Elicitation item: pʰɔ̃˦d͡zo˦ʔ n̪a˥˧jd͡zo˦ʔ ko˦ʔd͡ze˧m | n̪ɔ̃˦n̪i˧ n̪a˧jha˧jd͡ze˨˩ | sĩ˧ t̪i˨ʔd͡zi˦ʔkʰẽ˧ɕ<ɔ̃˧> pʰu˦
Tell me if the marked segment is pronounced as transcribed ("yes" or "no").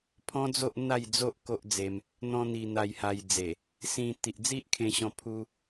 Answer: yes